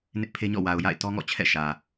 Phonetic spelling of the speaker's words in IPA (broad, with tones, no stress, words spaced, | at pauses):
nɪ˦ʔpʰe˦ɲɔ̰˦˨ wa˨ʊ̯ ja̰˦˨ɪ̯tɔ˦ŋɔ̰˦˨t͡ɕʰɛ̰˦˨ ʃä˨